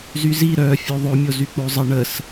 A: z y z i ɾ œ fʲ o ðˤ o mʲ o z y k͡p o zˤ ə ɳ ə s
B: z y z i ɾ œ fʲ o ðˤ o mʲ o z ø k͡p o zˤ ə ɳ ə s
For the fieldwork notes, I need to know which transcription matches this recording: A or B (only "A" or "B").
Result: A